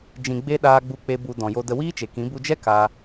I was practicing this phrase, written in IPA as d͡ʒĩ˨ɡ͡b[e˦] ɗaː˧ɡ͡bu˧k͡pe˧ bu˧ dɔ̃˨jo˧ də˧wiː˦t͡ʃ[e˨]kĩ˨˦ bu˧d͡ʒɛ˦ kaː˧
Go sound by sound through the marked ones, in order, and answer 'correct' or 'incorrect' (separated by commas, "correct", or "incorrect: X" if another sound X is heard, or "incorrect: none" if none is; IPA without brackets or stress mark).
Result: incorrect: e˧, correct